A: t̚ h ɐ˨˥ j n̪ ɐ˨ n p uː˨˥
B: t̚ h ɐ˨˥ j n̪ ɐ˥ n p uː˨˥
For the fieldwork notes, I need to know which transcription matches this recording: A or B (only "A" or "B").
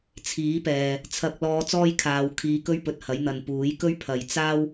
A